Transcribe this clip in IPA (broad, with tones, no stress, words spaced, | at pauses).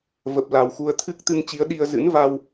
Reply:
və˨˩p̚la˨˩wxu˧ə̯ t̪ʰɨ˦˥k̚t̪ɨ˧ŋt͡ɕi˨˦ə̯ ɗi˧ə̯ zɨ̰˧˥n va˧w